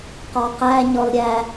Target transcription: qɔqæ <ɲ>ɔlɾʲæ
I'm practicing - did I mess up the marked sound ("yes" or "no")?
no